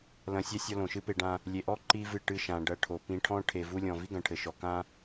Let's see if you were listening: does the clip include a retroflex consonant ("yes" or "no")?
yes